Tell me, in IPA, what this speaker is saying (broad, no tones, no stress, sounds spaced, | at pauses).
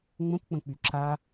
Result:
ŋ͡m ə̃ p k͡p ə̃ k͡p y ǁ a